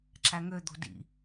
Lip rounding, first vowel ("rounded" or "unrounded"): unrounded